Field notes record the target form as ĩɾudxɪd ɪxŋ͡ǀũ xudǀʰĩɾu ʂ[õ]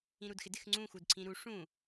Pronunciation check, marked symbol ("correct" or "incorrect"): incorrect